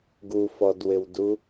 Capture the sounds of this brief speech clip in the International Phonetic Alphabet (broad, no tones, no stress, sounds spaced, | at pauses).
ɡ u f ɔ d w ɪ w d u